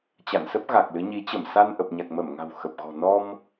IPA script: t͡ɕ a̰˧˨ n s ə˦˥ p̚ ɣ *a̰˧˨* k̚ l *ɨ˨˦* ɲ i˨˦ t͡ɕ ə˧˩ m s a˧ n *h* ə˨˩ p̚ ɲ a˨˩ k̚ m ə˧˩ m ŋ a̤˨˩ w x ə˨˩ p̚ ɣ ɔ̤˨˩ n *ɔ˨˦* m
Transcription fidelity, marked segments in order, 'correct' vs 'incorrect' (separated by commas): incorrect, correct, incorrect, incorrect